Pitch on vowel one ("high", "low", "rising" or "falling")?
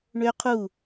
high